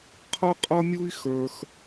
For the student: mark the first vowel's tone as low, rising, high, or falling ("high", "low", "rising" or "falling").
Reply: high